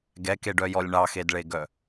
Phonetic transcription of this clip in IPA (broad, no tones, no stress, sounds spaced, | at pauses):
ɡ ɛ k e ɖ œ j ɔ lʲ ɳ ɑ x e d ɭ e ɡ œ